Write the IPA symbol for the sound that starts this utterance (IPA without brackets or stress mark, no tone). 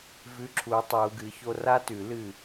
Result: v